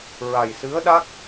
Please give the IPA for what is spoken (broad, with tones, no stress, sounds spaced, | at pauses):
ɹ a˨˩ j s ɨ˧˥ ə̯ ɗ a˦˥ k̚